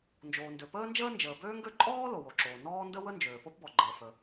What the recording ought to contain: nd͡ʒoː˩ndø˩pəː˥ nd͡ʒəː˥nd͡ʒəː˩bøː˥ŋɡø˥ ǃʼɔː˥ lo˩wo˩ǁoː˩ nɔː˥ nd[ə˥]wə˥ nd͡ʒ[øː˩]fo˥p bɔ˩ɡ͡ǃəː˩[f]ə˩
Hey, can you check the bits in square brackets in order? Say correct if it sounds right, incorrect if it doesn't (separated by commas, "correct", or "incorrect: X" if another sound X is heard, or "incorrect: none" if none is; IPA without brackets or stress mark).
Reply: correct, correct, correct